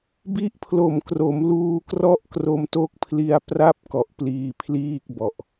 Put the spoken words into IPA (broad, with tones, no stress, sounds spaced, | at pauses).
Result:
b i˦˥ ʔ pʰ l o˨˩ m k r o˩˦ m l uː˧ k r ɔ˥˩ ʔ k r o˧ m t o˦˥ k̚ pʰ l i˧ a̯ p r a˥˩ p̚ k ɔ˨˩ ʔ p l iː˧ pʰ l iː˥˩ k̚ b ɔ˨˩ ʔ